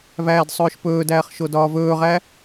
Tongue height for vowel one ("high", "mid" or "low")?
low